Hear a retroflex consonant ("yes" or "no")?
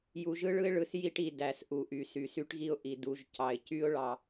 yes